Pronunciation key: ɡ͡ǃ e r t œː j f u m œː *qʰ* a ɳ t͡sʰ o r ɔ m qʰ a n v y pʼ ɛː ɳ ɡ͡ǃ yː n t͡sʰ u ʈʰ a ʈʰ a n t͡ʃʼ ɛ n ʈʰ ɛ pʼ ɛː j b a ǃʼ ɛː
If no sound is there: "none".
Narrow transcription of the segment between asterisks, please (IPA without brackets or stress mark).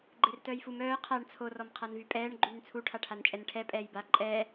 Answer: qʰ